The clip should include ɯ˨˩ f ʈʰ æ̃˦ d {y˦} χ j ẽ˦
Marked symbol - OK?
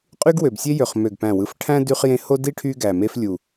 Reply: yes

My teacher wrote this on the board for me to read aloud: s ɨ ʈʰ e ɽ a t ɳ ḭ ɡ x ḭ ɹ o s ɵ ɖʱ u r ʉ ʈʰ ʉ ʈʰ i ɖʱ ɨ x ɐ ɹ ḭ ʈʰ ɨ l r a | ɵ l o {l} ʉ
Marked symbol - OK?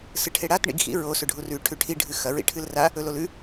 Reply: yes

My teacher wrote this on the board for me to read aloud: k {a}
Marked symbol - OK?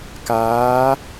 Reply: no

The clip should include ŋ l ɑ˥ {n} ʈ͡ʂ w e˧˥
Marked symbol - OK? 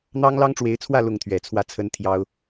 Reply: no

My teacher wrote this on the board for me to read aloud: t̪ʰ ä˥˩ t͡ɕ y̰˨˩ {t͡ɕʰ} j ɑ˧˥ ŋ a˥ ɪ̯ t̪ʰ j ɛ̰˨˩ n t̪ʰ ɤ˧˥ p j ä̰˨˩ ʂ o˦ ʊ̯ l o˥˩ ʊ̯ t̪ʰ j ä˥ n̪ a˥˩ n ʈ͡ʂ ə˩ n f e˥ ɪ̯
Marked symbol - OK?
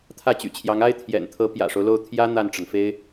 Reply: yes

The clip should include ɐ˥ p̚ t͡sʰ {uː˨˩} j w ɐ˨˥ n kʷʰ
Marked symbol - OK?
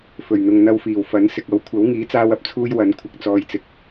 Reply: no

